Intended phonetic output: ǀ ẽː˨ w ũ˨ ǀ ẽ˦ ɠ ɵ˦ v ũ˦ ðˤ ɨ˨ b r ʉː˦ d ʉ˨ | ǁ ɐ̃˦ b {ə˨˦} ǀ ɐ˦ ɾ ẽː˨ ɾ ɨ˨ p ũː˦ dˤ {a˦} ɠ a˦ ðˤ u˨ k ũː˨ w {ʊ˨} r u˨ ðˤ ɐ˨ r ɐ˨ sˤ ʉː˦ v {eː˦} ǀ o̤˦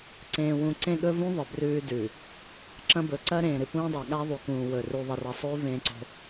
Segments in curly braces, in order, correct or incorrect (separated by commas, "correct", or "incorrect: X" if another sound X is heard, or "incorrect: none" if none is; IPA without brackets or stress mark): incorrect: ɵ˨˦, incorrect: a˨, incorrect: ɵ˨, incorrect: ẽː˦